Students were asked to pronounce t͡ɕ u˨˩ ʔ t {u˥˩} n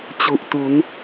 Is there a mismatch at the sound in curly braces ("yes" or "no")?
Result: yes